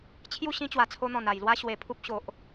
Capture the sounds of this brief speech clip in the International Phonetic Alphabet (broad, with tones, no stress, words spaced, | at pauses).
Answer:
t͡ɕʰju˥˧ ɕĩ˦t͡ɕwa˨˩t͡sʰo˧n̪ɔ̃˨˩n a˨˩jlwa˦ ɕwe˨˩pʰu˦p̚ ɕo˨ʔ